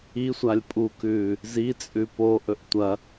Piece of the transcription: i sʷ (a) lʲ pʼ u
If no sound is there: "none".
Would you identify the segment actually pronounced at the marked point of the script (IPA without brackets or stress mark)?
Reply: a